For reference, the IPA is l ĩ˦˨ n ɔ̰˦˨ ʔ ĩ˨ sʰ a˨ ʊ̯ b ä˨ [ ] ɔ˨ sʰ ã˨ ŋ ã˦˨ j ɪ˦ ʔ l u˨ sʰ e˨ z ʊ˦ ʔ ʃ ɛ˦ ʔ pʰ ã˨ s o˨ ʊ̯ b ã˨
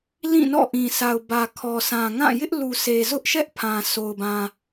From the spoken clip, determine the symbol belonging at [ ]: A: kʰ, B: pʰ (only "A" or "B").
A